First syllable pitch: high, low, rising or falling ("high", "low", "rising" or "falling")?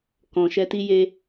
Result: low